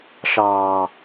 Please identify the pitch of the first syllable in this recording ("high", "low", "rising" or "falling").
low